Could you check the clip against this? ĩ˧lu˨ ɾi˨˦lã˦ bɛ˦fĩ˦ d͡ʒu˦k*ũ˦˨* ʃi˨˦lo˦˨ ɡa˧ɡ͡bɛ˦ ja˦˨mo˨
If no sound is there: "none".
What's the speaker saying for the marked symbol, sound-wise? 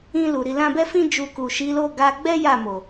u˦˨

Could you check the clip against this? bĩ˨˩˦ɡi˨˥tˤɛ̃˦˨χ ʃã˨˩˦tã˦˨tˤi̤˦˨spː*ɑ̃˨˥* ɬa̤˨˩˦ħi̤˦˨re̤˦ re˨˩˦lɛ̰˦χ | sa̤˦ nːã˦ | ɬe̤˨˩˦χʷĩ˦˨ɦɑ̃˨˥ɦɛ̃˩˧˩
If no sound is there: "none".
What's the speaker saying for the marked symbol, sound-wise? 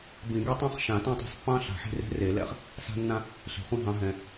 ɑ̃˦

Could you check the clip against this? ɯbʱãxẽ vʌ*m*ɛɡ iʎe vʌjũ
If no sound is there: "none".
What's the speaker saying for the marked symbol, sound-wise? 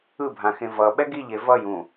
ɓ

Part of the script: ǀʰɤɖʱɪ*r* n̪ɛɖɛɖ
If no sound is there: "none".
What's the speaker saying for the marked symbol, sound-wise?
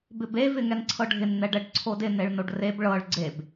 n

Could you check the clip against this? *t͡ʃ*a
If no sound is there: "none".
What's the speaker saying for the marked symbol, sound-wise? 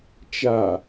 t͡ʃ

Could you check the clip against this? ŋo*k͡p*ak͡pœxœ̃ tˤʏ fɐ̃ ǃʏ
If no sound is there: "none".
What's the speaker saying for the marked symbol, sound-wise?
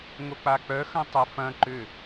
k͡p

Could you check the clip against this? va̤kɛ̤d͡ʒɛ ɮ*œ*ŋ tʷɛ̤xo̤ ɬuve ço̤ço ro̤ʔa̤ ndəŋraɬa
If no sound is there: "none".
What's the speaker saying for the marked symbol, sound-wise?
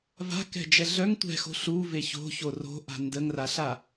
œ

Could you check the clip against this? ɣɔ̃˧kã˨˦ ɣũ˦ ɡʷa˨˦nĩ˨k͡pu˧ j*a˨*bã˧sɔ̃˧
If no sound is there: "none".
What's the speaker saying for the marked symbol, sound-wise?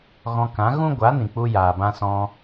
aː˨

